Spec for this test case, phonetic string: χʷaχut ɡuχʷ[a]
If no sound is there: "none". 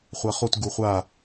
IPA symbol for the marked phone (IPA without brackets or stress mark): a